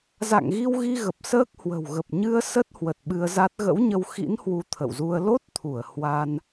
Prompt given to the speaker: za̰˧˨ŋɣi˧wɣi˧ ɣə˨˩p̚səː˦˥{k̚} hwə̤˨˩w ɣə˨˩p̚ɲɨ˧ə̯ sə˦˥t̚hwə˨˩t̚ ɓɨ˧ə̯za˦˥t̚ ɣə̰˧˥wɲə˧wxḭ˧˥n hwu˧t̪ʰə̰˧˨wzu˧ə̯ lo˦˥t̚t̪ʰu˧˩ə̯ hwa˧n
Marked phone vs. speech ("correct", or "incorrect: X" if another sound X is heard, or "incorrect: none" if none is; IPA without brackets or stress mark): correct